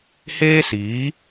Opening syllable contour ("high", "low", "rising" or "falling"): high